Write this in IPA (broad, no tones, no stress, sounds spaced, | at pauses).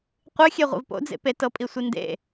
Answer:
qʷ ɨ xʲ e ʁʷ ḭ v p o̰ d͡z ḛ p e t ɤ pʼ i sʷ i n d ḛ